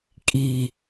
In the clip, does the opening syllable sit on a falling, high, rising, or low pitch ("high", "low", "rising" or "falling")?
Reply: low